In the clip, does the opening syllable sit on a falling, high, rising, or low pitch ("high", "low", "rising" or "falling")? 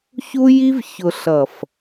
high